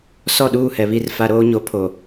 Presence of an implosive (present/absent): present